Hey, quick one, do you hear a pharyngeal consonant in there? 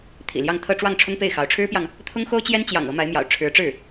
no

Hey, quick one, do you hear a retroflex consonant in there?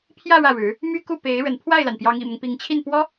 yes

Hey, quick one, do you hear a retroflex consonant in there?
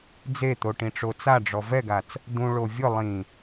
yes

